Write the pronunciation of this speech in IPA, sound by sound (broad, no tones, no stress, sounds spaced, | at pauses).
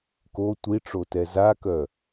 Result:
k o tʷ i ʈ͡ʂ o t ɛ z a k œ